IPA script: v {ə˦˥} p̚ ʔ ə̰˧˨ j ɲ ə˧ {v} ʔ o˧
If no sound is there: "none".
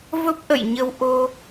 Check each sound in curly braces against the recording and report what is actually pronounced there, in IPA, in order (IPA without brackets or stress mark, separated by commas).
ə˦˥, w